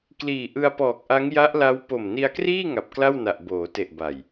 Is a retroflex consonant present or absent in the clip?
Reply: absent